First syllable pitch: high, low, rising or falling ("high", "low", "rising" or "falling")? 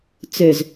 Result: low